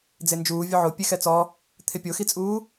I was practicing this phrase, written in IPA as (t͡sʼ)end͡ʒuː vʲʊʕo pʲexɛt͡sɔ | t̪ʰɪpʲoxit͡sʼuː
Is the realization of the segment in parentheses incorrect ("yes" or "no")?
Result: yes